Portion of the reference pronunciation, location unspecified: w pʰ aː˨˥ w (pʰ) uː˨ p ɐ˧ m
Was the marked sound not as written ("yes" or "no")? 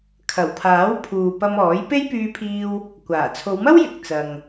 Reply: no